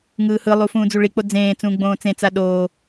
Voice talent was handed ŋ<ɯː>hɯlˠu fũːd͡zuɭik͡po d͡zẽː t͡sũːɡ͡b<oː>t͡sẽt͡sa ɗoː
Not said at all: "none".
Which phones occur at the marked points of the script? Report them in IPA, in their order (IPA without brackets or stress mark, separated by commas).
ɯː, õː